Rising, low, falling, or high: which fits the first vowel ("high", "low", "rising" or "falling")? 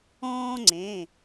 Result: high